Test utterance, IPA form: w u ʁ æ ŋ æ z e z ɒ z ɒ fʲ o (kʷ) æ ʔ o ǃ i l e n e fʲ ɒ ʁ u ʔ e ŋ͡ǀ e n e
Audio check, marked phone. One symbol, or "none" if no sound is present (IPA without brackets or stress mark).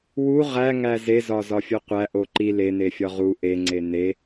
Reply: qʷ